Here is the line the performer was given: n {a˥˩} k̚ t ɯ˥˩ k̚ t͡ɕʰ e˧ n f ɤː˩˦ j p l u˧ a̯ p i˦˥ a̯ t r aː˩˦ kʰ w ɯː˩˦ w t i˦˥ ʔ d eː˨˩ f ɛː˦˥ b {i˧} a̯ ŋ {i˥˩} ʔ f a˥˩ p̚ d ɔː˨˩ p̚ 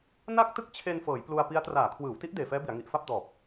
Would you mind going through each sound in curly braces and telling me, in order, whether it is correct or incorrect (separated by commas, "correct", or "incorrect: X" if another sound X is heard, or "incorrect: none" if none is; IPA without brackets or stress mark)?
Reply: correct, incorrect: i˩˦, incorrect: i˨˩